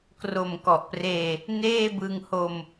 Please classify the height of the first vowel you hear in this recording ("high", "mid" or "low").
mid